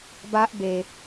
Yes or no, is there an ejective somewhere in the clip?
no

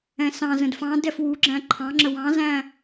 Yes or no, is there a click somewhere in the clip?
yes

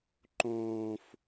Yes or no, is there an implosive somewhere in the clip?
no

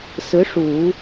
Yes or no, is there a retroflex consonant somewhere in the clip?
yes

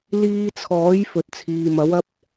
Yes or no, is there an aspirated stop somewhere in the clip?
yes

